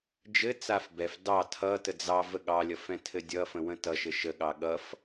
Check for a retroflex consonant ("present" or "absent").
absent